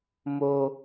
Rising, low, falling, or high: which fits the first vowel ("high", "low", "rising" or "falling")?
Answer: low